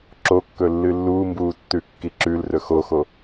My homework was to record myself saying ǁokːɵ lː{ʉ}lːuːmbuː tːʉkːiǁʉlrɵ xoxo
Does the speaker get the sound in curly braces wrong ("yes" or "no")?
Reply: yes